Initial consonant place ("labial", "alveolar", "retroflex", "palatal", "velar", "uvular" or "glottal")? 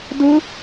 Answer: alveolar